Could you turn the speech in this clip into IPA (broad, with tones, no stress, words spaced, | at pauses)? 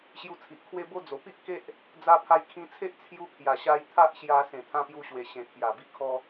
ɕju˧t͡sʰi˨ʔkʰwe˦bo˦ d͡zo˨˩ pi˦ʔke˦ʔ | d͡za˧pʰa˧jkʰĩ˧t͡sʰe˦ʔ t͡sʰju˧kʰja˨˩ɕa˧j t̪ʰa˦ʔɕja˧ sẽ˨˩t̪ʰã˧pju˧ɕwe˨˩ ɕẽ˨˩t̪ʰja˨˩bi˧ kʰɔ˧